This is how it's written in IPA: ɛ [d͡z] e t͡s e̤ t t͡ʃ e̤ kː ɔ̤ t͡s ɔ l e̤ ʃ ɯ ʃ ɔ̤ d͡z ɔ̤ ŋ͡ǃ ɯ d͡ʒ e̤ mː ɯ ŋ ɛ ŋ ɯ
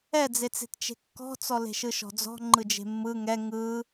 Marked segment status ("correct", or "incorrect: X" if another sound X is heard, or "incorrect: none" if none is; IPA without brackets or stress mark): correct